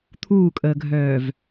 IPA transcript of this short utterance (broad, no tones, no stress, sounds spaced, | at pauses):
t̪ʰ uː kʼ əː ɡʱ œː v